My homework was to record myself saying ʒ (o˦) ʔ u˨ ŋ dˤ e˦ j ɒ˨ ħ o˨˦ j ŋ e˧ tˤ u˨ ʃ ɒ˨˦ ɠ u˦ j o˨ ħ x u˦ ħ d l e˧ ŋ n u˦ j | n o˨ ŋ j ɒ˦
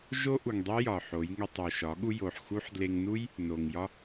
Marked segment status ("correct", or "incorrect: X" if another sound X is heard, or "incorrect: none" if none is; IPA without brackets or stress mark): correct